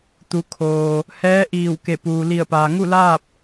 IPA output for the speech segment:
t̪ u˩˧ kʰ oː˩ | h ɛː˧˥ ʔ iː˧˩ w k e˧˩ p uː˩ l i˧˩ ə̯ p aː˩ ŋ u˥˨ l aː˥˨ p̚

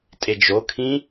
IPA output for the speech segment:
tʼ e d͡ʒ o kʰ ĩ

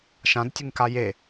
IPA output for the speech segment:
ʃ ã d tʲ ɨ ŋ k a j e

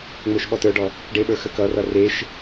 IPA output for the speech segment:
ŋ͡m ə˞ ʃ ɓ ɔ t ə˞ ɖ ɔ | ɖ e ɓ ə˞ x ə k ʌ r ʌ r e ʃ

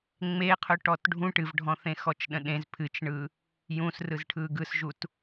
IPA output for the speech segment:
ŋ͡m e qʰ ɵ ʈ ɔ t ɖʱ ũ ʈ ɨ v ɖʱ ɔ̃ θ ẽ x ɔ t͡ʃ ɗ ə̃ ɗ ẽ z pʰ ɨ t͡ʃ ɳ ɯ | j ũ s r ɯ z ʈʰ ɯ ɡ ɯ s ʒ u t

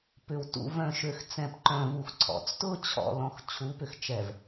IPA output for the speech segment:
p ʏ˨ w t ṵ˨ v œ̃˨ ʃ ø˨ x t͡s ɛ̃˨ p ǃ œ̃˨ v u˨ x ǀʰ ɔ̰˨ t͡s t ʊ˦ t͡ɕʰ ɔ̰˨ l ɔ̃˦ x t͡ɕʰ u˨˦ p ʏ˨ x t͡ʃ ɛ˨ v

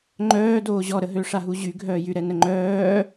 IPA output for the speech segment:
ŋ͡ǃ œː d oː ʑ ɔ ɾ ə ɦ ø ʂ a ɦ u ʑ y ɡʱ œː j y ɾ ɛ n ə ŋ͡ǃ œː

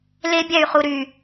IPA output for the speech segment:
l e bʲ æ y̯ χ u ɾ y

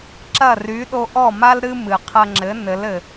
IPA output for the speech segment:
ǁ ɐ˥˩ r y˩˥ ɗ o˧ ʔ ɔ˥˩ m a˥ l ɾ ɨ˥ m ɨ˩ qʰ ɐ˧ ŋ͡ǁ ɘ˩˥ n ɘ˩˥ l ɘ˩

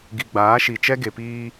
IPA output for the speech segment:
ɡ i˨ ɡ͡b aː˨˦ ʃ i˨ t͡ʃ ɛ˦ ɡ e˨ p iː˦

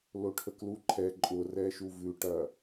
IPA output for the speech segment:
l o ʈʰ ə k l u ǃʰ ɛ ǃʼ ʊ r ɛ ʃ u v ʉ ʈ ɐ

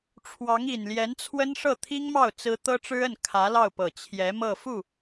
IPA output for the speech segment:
ʈ͡ʂʰ w ɑ˧˥ ŋ i˨˩ n l j ɛ˧˥ n t͡sʰ w ə˥ n ʂ ɤ˥˩ t̪ʰ i˥ ŋ m ɑ˥˩ ʊ̯ t͡s ɹ̩˥ t̪ ɤ˥ ʈ͡ʂ ɻ̩˥ ə˥˩ n kʰ ä˧˥ l ɑ˥˩ ʊ̯ p ɤ˨˩ t͡ɕʰ j ɛ˧˥ m ɤ˥˧ f u˥˩

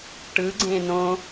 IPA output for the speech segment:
ʈ ɯ ɡ͡ǀ ẽ n õ

